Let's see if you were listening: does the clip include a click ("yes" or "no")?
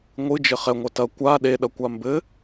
no